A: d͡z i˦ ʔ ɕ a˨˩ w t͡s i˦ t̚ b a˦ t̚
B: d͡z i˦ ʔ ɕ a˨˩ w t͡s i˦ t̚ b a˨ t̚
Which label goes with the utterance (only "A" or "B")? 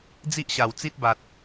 B